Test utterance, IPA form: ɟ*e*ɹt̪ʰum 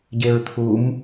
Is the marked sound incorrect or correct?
correct